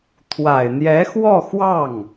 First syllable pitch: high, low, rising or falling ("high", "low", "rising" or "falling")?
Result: low